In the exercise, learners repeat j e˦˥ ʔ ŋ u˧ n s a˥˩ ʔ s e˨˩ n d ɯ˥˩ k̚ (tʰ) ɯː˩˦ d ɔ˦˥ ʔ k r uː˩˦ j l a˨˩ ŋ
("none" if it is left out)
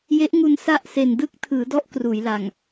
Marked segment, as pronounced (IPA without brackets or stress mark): tʰ